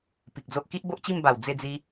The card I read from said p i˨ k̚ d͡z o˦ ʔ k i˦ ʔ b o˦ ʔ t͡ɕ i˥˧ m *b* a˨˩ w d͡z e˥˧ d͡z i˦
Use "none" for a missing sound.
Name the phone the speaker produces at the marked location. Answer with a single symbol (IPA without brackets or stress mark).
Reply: b